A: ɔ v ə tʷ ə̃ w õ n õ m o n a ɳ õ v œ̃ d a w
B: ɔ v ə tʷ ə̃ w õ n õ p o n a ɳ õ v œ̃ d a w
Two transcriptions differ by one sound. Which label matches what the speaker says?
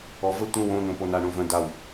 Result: B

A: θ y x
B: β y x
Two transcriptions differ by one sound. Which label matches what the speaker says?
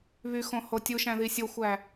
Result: B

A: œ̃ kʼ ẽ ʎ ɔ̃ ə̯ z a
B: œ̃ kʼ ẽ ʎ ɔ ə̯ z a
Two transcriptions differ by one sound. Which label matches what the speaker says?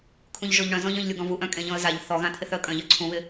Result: A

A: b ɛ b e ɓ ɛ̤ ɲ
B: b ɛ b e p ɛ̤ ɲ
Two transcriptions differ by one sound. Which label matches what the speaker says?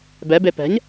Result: B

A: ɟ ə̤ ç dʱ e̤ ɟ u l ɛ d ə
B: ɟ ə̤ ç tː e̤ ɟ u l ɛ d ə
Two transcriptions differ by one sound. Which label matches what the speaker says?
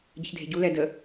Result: A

